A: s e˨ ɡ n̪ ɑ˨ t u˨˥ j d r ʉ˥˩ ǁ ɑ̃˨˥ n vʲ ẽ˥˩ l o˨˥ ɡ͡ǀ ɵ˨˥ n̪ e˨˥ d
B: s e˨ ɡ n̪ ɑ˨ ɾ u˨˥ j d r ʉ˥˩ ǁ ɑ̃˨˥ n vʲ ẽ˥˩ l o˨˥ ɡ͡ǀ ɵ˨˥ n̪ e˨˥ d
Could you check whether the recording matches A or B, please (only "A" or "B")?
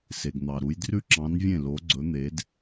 B